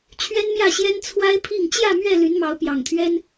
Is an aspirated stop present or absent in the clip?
present